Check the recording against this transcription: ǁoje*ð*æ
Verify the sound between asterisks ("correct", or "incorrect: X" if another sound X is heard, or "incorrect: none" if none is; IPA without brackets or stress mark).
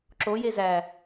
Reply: incorrect: z